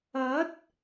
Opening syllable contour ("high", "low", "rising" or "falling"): rising